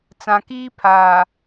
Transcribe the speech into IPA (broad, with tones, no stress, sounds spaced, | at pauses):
t͡s ã˨ k iː˦ pʰ aː˨